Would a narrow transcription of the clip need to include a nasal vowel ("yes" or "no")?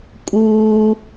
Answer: no